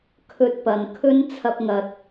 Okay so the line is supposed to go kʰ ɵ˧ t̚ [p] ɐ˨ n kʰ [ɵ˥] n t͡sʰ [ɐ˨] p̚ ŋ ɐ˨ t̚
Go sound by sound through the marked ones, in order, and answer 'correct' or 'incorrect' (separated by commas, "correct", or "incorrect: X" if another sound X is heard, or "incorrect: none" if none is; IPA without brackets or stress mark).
correct, correct, incorrect: ɐ˧